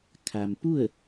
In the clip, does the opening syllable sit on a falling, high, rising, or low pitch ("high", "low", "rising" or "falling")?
low